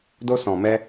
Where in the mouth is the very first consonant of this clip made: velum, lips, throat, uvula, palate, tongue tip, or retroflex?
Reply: tongue tip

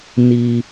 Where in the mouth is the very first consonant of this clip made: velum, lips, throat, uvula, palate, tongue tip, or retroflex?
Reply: tongue tip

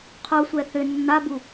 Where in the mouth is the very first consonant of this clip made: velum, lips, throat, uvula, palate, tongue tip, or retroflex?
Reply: uvula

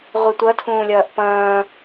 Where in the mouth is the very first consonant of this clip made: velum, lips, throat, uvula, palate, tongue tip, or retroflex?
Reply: uvula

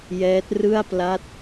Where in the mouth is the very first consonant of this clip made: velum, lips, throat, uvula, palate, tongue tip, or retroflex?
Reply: palate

